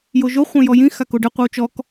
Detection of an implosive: absent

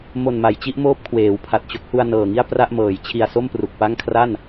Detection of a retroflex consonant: absent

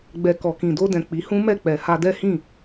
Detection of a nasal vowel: present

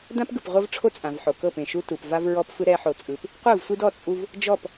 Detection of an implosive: absent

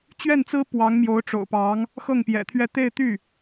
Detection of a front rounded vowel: present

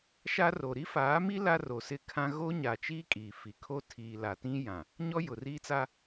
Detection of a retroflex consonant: absent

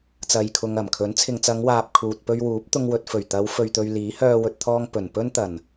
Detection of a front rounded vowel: present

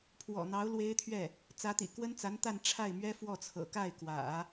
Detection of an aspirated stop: present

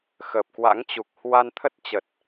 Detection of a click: absent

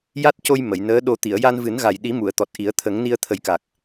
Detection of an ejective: absent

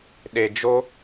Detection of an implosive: present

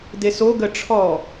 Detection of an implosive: absent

